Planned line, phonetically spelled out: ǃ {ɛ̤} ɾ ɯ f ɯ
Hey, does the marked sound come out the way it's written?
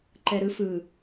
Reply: no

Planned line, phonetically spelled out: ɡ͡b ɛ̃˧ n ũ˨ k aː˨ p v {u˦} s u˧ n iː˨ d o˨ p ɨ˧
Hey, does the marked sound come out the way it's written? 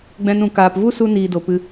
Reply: yes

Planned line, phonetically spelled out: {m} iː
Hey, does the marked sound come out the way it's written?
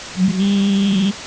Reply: no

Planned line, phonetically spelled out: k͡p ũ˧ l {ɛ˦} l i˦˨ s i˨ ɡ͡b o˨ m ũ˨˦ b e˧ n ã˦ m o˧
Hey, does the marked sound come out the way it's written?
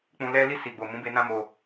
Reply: yes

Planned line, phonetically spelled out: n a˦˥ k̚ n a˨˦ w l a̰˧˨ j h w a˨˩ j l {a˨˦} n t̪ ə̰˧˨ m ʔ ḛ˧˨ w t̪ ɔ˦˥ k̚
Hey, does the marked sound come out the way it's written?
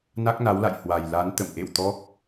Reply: yes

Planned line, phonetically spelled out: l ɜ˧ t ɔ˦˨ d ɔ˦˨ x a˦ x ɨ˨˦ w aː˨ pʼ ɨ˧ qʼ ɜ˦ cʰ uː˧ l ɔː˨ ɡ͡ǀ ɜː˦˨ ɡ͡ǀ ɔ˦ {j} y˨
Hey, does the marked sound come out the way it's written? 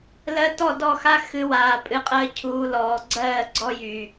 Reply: yes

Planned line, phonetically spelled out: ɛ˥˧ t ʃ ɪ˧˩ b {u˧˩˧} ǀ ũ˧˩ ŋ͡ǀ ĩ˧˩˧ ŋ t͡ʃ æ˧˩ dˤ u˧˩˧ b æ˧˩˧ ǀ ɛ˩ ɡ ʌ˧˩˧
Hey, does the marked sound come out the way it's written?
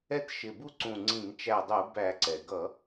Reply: no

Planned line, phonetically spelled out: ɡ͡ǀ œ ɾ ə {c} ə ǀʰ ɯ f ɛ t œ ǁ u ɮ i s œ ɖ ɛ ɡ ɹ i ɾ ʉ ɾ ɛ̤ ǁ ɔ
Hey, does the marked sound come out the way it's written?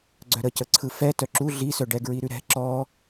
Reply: yes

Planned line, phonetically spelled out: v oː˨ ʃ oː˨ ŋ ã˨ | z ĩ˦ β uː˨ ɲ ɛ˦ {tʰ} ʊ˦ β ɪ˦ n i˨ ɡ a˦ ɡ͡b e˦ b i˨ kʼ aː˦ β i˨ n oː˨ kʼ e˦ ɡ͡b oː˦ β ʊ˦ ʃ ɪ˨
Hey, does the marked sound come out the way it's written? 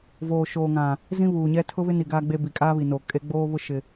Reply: yes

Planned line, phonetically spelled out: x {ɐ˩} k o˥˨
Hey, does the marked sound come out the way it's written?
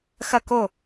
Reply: no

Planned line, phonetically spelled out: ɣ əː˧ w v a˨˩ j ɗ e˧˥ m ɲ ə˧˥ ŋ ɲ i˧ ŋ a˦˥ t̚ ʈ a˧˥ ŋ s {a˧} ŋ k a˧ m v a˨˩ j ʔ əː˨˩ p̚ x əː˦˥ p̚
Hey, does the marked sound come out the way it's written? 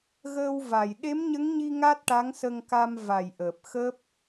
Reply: no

